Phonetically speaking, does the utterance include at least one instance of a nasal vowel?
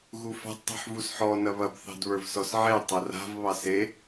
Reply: no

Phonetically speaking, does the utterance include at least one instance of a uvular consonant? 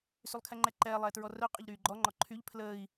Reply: yes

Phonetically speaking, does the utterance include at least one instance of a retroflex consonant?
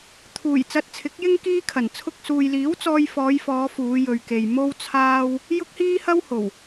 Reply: no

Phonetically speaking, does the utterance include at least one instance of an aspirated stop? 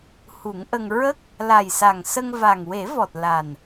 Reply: no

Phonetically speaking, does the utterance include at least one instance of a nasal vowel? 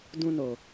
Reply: yes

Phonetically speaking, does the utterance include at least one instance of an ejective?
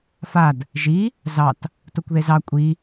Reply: yes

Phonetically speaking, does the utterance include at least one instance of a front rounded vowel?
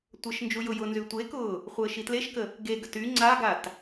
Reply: yes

